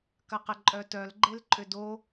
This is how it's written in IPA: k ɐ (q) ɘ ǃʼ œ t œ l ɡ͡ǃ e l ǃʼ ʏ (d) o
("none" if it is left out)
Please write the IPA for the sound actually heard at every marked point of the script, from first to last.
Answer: q, d

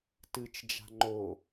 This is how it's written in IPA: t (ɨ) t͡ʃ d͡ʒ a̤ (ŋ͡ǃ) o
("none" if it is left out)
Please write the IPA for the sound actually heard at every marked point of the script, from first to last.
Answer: ɨ, ŋ͡ǃ

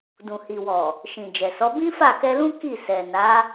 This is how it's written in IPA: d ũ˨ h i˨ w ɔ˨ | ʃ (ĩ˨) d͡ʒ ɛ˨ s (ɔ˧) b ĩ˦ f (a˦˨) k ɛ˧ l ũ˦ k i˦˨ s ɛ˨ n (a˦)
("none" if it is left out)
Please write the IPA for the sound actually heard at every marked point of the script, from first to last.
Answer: ĩ˨, ɔ˨˦, a˦˨, a˨˦

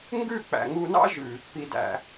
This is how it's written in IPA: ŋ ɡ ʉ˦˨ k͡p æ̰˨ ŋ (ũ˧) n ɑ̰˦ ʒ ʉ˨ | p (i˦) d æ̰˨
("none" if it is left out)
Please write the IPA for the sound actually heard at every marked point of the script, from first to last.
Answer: u˧, i˨

